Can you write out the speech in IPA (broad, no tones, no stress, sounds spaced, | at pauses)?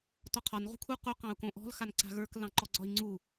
t ɔ qʰ ɒ n ʁ ṳ kʰ u q u q ɑ̃ u̯ k õ ʔ ɔ̤ l x a n ǀ a̤ ɣ ə˞ k l ɑ̃ ǃ ɔ ɡ͡ǀ ɒ i̯ ŋ͡ǀ u